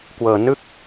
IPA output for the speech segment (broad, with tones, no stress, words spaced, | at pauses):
kwɤː˧ nɯ˥˩k̚